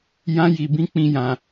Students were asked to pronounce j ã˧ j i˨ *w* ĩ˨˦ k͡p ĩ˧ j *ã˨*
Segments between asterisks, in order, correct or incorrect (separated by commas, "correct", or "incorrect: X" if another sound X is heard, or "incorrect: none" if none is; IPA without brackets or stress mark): incorrect: b, correct